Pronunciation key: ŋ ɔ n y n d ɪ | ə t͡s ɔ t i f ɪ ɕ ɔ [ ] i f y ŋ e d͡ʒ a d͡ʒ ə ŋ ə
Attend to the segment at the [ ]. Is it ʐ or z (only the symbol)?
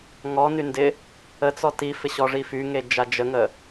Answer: ʐ